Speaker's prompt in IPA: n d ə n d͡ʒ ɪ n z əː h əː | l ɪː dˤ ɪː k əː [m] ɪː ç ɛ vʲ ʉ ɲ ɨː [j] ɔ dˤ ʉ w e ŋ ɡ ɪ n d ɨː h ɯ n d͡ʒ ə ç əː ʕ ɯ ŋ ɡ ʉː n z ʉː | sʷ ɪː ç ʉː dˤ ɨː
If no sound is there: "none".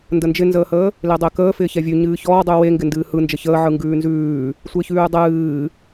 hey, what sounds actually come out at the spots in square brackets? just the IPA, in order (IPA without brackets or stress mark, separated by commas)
f, ç